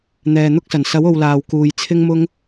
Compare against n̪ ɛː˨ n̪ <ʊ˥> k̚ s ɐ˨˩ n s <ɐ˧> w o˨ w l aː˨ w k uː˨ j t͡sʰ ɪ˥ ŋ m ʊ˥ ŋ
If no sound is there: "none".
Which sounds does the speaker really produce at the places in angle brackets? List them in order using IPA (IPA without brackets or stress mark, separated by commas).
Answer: ʊ˥, ɐ˨˥